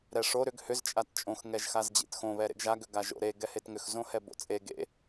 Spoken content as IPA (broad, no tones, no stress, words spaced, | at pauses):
ɾɛʂo ɾʏɡ hʏz t͡ʃʼatt͡ʃʼõx ŋɛʒxazd͡ʑḛtxõ βɛɾḛɡʒaɡ ʏɡaʒo̰ɾe ɡɛhetŋʏx zõhɛbo̰t͡sʼeɡ ḛ